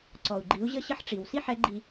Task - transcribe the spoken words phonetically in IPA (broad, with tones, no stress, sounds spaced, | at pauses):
ǀ ɔ˩ u̯ ɡ͡ǃ i˩˧ u̯ ʑ ə˧ ɕ ə˧ ħ ʈ͡ʂ i˩ w s i˥ ħ ɛ˧˥ ɡ͡ǃ i˧